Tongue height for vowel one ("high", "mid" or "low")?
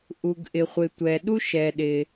high